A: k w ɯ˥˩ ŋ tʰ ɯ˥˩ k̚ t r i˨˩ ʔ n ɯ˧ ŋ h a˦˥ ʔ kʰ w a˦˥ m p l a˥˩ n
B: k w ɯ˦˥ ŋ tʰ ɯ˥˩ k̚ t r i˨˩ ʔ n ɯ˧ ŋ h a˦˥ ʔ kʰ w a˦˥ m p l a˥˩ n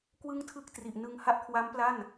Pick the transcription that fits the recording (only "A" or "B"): A